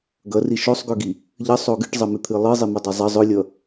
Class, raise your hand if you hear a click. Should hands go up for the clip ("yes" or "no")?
no